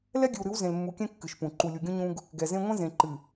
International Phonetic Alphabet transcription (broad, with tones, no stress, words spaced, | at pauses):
lɛ˦ɡʲɨ˨wɾɨ˨˦w zẽ˨lmːu˨kʲɛ̃˦ kːɨ˨ʃpũ˨ ǃu˨lʲu˨ɡʲũ˦ ɲũ˦ɡ | ɡɛ˨zẽ˦ ŋʷẽ˦zẽ˨ǃɨ˨